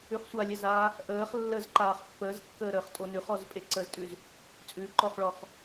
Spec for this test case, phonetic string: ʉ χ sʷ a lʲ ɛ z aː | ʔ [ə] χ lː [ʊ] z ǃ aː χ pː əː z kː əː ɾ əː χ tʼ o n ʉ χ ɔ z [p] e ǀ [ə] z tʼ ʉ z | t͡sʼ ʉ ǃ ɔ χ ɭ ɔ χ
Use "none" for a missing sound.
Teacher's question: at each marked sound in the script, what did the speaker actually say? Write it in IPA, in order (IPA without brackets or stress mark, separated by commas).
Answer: əː, ə, pʼ, ə